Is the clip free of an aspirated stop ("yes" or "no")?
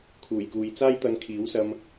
no